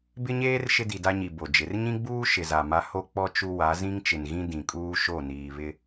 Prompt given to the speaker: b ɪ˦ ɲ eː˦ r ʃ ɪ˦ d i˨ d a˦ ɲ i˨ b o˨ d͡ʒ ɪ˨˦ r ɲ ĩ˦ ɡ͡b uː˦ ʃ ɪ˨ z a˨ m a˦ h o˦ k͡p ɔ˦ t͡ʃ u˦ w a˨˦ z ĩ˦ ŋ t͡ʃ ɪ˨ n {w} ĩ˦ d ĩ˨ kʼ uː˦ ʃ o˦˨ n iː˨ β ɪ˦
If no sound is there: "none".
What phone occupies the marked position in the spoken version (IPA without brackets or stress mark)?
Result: ɣ